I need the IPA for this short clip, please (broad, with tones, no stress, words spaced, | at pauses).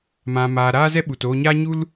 mã˧ maː˧ ɾaː˦zɛ˦ɓu˨t oː˧ɲaː˦ ɲu˦l